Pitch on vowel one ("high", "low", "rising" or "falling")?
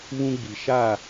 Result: high